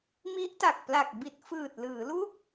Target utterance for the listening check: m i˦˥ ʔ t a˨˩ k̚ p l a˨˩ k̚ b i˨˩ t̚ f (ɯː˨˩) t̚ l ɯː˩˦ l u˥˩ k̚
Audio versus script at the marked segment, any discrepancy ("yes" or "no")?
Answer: no